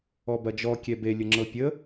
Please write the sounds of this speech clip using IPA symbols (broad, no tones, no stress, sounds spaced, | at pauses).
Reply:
ɔ b ɐ d͡ʒ ɔ kʲ ɛ b e lʲ ə ŋ͡ǁ ɤ pʲ ə